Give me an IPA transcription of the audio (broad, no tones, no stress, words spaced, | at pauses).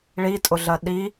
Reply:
ɭitʼʊɮɜ ɗi